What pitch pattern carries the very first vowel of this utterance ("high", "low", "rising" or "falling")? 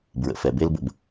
low